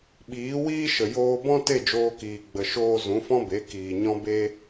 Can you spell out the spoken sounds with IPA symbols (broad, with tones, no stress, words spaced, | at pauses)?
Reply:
ɓiː˨˦wiː˦ʃə˨ joː˧bɔ̃˦ te˦˨d͡ʒoː˧kiː˨ ɡ͡bə˨ʃoː˧ zũ˨˦fɔ̃˦be˨˦ kiː˨ ɲɔ̃˧be˧